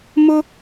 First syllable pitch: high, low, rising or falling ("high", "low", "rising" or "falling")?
high